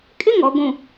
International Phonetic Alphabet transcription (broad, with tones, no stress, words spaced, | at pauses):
kʼɪ˦˨ŋɔ˨ ɡʷũ˨